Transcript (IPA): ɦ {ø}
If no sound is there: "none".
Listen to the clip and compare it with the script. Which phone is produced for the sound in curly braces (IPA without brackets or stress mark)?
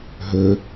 ø